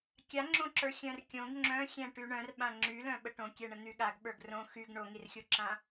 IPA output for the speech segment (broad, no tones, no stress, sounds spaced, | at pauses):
kʲ a ŋ͡ǁ õ ǁ ə˞ xʲ œ̃ r kʲ õ ɡ ŋ͡ǁ œ̃ xʲ ɛ̃ ʈ y ɳ œ̃ r ɓ ã ŋ͡ǁ y l œ̃ ɓ ə ʈ õ kʲ ɛ ɳ ə n̪ y ɠ a ɡ ɓ ə˞ ɡ r õ x y ɡ ɳ o ŋ i r xʲ o ǁ ã